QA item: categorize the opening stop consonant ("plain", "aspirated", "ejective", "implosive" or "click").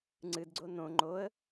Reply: click